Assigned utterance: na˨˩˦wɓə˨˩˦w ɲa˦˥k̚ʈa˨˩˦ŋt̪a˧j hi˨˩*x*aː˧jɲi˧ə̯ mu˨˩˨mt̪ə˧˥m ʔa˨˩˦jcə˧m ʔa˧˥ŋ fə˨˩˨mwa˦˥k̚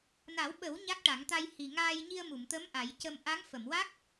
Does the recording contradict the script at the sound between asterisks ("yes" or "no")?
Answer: yes